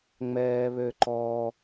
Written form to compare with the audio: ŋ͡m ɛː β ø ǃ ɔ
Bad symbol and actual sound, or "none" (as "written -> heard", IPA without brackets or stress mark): none